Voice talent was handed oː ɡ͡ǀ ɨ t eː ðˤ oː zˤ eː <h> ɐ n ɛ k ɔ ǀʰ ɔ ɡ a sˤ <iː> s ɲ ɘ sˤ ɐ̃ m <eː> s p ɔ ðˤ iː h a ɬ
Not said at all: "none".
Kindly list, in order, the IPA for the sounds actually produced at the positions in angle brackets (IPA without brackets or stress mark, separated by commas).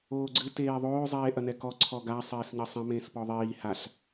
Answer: ʔ, eː, ẽː